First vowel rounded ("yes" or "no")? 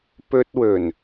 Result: yes